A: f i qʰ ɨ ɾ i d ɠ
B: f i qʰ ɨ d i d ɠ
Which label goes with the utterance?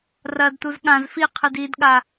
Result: B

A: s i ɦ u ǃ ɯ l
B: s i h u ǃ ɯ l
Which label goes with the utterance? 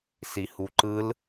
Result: B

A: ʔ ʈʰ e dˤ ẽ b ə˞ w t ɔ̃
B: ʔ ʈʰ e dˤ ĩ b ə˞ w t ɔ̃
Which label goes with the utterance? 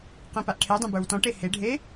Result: A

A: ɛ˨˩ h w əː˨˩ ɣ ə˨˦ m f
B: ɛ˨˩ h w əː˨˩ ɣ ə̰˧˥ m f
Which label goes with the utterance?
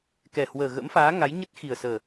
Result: B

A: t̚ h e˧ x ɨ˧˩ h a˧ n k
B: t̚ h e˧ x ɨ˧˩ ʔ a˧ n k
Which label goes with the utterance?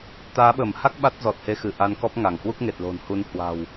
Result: B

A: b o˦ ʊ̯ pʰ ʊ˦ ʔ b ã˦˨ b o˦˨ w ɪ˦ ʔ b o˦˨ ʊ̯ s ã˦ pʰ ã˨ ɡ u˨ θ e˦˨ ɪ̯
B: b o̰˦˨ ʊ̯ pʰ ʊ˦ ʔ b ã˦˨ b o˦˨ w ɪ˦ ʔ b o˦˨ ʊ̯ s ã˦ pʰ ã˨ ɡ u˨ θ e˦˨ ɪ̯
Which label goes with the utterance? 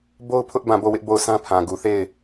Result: A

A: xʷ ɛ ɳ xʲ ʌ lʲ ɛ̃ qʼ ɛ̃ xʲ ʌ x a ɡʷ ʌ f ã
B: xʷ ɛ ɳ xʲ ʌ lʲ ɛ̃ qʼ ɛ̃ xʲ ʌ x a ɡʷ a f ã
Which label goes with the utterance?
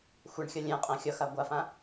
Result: B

